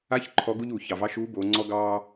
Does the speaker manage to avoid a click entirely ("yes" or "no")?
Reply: no